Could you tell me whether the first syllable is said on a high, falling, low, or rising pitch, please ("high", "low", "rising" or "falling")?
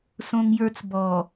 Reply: high